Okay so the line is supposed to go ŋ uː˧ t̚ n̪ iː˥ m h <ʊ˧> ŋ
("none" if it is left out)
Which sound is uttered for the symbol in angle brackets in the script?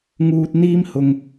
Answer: ʊ˧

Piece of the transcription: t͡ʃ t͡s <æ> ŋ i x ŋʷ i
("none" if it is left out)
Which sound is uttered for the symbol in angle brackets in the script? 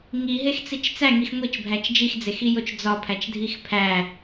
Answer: æ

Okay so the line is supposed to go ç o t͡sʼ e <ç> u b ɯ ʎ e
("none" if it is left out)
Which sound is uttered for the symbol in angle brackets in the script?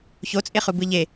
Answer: χ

